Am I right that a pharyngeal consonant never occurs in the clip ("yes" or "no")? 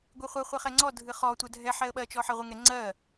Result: no